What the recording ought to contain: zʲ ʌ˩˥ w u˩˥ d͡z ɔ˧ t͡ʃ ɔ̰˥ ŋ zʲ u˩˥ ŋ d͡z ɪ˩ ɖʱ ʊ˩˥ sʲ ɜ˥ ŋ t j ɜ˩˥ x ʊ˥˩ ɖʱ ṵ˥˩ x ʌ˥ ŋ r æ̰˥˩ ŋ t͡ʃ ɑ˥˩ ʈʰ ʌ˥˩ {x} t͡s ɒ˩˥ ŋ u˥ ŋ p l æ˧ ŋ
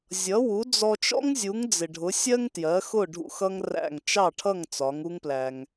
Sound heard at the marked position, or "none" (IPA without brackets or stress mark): ŋ